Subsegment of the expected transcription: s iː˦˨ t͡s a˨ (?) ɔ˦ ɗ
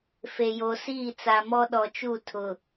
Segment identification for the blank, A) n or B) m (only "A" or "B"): B